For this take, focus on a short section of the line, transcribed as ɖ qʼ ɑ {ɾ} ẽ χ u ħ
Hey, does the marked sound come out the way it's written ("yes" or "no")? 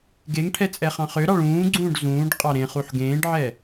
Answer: yes